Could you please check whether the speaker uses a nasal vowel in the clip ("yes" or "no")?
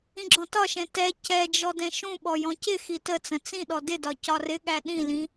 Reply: yes